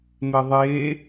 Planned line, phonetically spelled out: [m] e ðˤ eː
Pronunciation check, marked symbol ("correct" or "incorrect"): correct